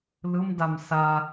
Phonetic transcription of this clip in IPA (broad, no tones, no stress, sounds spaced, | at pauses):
l ɯ m d a m s a